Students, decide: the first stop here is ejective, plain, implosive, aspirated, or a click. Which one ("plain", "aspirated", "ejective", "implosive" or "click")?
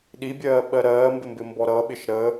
implosive